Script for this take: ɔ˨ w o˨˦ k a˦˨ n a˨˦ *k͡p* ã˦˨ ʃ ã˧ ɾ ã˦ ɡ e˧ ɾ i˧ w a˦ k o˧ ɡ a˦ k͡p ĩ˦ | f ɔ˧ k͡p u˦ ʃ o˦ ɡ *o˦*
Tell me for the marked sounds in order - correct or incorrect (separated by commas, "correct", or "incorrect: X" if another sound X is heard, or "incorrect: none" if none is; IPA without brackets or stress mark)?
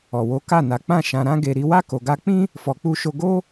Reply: correct, correct